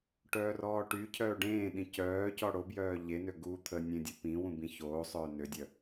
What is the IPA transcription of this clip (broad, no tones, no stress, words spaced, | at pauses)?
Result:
ʈœːrɔːʈycʰœː ɖẽːɗĩ cœːcɔ ɽobjœː ʎenø ɡu t̪ʰənʲẽ dʲəpĩwũ bĩçoːsˤœː nødʲœ